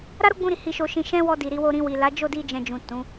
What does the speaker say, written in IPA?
ɾ a˦ ɾ o˦ ɡ͡b ũ˧ ɾ i˨ h i˧ ʃ o˧ ʃ ĩ˧ ʃ ɛ̃˦ w ɔ˧ d i˨ ɾ i˧ w o˧ ɾ ĩ˧ w i˨ l a˨˦ d͡ʒ o˦˨ d i˧ d͡ʒ ɛ̃˨ d͡ʒ ũ˨ t ũ˨˦

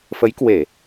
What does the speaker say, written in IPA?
f ə˨˦ j k w e˧˩˨

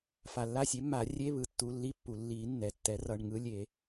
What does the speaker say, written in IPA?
f a˩ lː a˦˨ sʲ e˩˥ mː a˨˩˦ rʲ e˧˥˧ β ɯ˩ tː u˩˧˩ lː i˧˥˧ pː u˩ lː i˨˩˦ nː ɛ˩˧˩ tː ɛ˩˥ r ʌ˩˧˩ ɳ ŋ ɯ˧˥˧ lʲ e˨˩˦

